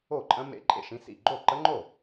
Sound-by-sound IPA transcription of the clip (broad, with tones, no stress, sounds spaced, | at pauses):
o˥˩ ǃʼ ə̃˦˥ m ḛ˦˥ ǃʼ ḛ˥˩ ʃ ĩ˦˥ s ḭ˥˩ ɡ͡ǃ o˥˩ ǃ ə˦˥ ŋ͡ǃ o˥˩